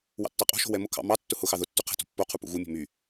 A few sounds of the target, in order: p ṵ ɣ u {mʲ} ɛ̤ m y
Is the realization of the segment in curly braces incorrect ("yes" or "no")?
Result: no